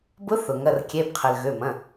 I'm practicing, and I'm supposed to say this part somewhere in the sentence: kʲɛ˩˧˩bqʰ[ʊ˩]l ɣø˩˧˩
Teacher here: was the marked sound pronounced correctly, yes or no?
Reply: no